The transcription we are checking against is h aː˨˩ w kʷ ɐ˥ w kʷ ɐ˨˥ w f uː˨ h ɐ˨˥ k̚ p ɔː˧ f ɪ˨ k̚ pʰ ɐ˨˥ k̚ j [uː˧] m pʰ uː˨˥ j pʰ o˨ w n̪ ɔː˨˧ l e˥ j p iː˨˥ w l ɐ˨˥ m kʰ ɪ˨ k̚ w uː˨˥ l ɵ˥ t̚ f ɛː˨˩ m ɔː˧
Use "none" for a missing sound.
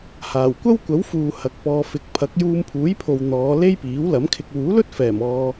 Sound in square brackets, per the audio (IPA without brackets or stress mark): uː˧